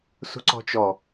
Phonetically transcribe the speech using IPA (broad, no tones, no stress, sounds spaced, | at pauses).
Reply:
s ṳ ǀ ɔ̤ t͡ʃ ɔ